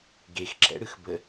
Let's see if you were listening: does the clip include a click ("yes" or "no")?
yes